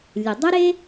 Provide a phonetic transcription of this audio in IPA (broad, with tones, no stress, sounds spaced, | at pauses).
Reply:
lʲ ɨ˩ dˤ ɨ˥ ɾ e˥